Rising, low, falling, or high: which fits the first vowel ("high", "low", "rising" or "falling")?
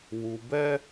low